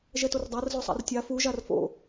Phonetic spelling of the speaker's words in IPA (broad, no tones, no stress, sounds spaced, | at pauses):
ʒ ɛ t o r dˤ a r z o sˤ a̰ r tʲ a f u ʒ a r f o̰